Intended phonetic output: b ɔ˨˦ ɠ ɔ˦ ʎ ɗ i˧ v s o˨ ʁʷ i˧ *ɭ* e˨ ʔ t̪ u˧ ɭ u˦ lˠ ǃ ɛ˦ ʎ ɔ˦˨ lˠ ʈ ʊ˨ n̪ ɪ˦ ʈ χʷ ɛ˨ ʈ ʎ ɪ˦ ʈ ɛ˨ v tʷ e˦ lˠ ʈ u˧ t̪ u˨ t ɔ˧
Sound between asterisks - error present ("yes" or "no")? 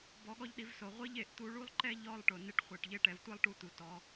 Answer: yes